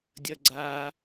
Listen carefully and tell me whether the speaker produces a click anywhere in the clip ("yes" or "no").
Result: yes